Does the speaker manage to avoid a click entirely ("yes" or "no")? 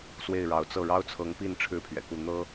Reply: yes